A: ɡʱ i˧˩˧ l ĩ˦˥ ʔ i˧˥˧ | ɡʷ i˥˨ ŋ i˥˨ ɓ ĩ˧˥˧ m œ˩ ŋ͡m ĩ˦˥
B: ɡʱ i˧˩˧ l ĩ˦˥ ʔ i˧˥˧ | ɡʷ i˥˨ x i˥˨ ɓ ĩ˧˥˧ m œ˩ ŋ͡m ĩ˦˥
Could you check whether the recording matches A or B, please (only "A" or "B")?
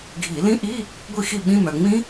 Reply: B